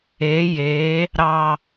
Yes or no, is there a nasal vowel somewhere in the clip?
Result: no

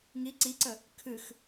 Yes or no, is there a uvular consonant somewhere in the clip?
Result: no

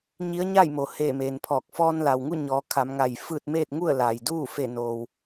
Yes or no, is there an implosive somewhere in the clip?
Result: no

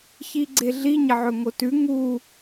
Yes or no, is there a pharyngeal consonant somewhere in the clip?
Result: yes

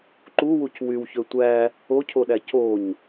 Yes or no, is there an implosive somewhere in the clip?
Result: yes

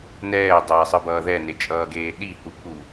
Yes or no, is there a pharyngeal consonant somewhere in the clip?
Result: no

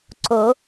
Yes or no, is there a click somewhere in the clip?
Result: yes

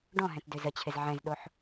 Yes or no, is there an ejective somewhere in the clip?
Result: no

